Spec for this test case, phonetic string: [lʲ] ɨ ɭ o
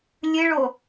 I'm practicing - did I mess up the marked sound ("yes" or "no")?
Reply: no